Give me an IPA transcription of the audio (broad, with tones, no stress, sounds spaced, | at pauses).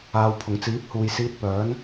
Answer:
aː˨ w pʰ ʊ˨˩ ŋ t͡s iː˨˥ p̚ h uː˨ j s iː˧ t̚ p œː˨˥ n